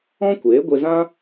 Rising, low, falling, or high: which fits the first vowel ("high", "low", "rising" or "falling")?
high